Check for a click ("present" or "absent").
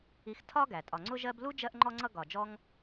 present